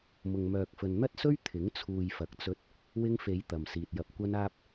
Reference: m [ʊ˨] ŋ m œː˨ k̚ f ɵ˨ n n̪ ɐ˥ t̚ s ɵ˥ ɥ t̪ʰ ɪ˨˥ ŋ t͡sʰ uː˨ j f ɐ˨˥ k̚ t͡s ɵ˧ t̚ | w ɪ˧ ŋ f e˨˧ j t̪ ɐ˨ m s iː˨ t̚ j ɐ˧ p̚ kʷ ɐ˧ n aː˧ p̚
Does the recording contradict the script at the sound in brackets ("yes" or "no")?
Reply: no